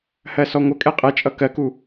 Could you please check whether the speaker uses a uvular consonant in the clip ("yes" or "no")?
yes